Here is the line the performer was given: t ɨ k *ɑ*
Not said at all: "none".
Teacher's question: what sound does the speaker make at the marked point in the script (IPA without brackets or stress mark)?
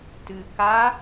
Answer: a